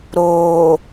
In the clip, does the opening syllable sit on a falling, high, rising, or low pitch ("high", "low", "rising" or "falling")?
low